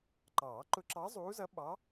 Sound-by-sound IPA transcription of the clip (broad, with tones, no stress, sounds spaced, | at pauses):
ǃ ɑː˨˩˦ ǃ ʊ˧˥ ǁ ɑ˧˥ zˤ uː˧˥ z ʌ˧˥ ɓ ɑ˧˥